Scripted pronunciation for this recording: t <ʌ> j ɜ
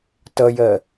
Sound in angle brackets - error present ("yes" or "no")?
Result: no